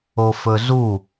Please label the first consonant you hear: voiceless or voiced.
voiceless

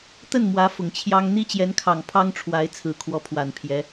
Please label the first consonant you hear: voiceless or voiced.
voiceless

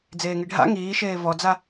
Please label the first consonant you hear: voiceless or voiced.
voiced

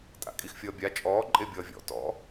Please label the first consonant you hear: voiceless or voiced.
voiceless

